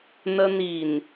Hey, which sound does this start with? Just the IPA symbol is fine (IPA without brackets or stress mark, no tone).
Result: n̪